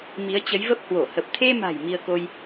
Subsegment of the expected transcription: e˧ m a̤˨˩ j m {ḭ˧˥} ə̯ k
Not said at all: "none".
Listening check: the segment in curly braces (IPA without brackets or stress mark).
i˧